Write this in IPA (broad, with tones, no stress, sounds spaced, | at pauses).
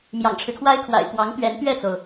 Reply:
m j ɑ̰˨˩ ŋ ʈ͡ʂʰ ɻ̩˦ kʰ w a˥ ɪ̯ kʰ w a̰˨˩ ɪ̯ p w ɑ˧˥ ŋ t̪ ɥ ɛ˧˥ n t̪ ɥ ɛ˥˩ t͡s o˩ ʊ̯